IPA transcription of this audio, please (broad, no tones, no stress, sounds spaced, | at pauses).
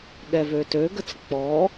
ɠ ɛ v ø t ø ɡ ə t͡s k͡p ɔ